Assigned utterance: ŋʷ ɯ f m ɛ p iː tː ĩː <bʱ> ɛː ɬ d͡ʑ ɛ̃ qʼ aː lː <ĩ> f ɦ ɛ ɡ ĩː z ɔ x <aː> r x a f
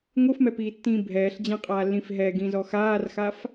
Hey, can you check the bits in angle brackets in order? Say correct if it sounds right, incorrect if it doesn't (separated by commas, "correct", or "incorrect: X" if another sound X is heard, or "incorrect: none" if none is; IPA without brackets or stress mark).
correct, correct, correct